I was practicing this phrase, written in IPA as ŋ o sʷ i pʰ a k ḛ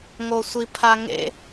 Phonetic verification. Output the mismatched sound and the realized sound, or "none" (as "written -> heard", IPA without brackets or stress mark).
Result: k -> ŋ